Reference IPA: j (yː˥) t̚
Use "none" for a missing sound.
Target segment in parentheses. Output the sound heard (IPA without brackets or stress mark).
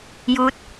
uː˥